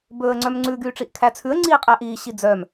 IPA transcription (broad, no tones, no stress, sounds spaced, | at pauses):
b ɵː ə̯ ŋ͡ǀ œ m ŋ͡ǀ ʉ ɡ yː ʈ͡ʂ i ʔ kʰ æ t͡sʰ ʉ ə̯ ŋ͡ǀ iː qʼ æ ʔ iː ɕ i d͡z œ m